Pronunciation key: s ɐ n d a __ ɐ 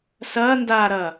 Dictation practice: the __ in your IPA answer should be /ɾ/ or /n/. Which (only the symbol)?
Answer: ɾ